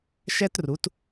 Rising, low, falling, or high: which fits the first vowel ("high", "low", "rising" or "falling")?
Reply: high